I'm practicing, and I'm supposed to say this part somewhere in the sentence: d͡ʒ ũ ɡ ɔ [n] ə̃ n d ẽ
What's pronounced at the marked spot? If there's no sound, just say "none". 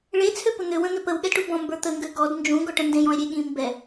ʈ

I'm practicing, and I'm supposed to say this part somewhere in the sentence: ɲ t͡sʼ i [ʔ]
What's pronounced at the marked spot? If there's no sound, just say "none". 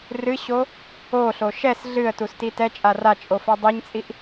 ʔ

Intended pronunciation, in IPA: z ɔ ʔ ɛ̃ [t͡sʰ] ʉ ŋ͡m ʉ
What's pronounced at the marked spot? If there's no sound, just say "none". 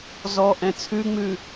t͡sʰ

